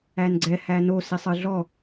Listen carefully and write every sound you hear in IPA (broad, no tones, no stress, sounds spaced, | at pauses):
æ n ɡ͡ǀ ɛ h æ n o s i sˤ ɨ ɮ ɔ